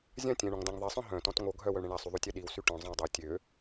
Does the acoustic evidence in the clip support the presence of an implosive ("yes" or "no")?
yes